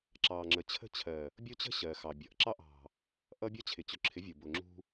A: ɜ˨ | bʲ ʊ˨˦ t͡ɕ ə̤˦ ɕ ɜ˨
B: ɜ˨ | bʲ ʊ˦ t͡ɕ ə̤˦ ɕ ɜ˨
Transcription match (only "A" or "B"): B